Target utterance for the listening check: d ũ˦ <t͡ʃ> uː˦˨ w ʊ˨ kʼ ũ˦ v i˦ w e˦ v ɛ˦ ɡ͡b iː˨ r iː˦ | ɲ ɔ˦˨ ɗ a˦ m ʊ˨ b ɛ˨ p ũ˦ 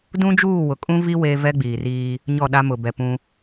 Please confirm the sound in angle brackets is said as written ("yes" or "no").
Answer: no